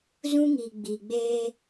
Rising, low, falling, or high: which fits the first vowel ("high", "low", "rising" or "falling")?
high